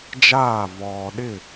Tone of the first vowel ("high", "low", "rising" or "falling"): falling